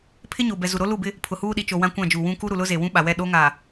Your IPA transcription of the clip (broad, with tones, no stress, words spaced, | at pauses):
pʰɪ˦ɲo˨bɛ˨ zu˨ɾo˦lu˦˨bɪ˦ | pʰʊ˨huː˦ɗi˨t͡ʃo˨ wã˦kʷã˦˨d͡ʒu˨ wũ˦ ku˦ɾu˨lʊ˦ ze˨wũ˦ɓa˨wɛ˦˨ ɗo˦ŋa˨